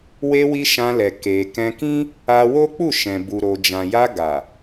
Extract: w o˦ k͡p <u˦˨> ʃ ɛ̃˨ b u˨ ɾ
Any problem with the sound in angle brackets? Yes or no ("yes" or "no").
no